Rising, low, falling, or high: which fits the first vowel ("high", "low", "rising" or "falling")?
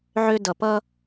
high